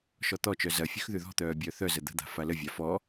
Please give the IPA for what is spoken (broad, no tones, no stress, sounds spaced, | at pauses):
ʃ ɔ t̪ ɔ t͡ʃ œ z ɐ fʲ ʉ x ð ʉ ð ɔ̤ t̪ œː bʲ œː θ œ z ə d̪ ə̤ d̪ a̤ f a l ə vʲ a f ɔ